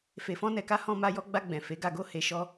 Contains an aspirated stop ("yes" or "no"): no